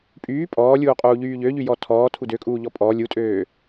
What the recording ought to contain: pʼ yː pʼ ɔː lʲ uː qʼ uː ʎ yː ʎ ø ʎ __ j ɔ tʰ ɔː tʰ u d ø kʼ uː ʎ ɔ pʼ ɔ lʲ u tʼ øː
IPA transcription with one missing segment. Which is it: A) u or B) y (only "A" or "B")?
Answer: B